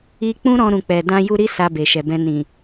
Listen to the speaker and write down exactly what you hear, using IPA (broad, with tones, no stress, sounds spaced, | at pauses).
i˧ k͡p ũ˦ ɾ ɔ̃˧ ɾ ũ˨ k͡p ɛ˨ d ã˧ j u˧ ɾ i˦ s a˧ b e˨ ʃ ɛ˨ b ɛ̃˧ n ĩ˨